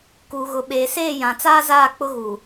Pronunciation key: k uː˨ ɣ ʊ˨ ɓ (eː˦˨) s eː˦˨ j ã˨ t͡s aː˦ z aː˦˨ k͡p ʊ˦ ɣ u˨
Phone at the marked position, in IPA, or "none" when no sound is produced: eː˨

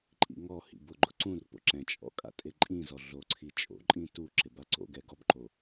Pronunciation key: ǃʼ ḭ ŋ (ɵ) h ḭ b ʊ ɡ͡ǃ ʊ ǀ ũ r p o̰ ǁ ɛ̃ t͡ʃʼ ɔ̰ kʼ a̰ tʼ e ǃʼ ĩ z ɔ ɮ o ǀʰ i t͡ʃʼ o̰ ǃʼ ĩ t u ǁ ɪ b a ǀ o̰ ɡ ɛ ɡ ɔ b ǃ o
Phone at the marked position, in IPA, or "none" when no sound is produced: ɔ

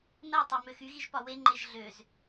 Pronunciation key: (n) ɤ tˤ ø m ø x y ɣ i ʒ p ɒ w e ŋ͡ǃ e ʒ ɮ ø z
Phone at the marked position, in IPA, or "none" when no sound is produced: n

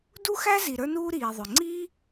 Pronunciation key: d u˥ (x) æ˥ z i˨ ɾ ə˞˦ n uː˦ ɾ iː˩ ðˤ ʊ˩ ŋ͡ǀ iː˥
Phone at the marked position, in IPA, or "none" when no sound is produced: x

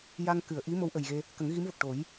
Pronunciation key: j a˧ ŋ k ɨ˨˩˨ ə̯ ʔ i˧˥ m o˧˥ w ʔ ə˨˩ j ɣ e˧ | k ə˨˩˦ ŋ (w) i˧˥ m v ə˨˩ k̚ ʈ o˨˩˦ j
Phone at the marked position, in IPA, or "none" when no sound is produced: ɣ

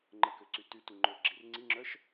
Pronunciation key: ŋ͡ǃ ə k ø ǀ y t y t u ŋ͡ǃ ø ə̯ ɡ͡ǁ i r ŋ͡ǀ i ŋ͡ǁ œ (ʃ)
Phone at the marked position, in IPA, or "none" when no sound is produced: ʃ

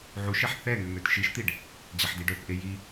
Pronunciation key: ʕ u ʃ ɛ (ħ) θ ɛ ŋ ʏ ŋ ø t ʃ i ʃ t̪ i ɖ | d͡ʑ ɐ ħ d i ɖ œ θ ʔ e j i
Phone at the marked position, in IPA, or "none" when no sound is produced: ħ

